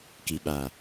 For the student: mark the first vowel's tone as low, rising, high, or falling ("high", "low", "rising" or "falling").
low